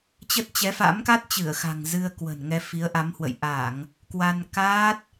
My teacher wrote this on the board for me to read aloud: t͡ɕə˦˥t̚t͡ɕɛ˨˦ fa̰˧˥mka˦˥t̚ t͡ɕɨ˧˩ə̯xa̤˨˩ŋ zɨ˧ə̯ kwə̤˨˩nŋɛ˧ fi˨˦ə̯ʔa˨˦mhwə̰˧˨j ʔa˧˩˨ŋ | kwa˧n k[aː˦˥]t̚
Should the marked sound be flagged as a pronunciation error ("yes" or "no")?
no